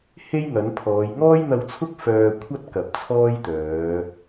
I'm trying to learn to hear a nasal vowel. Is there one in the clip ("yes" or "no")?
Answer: no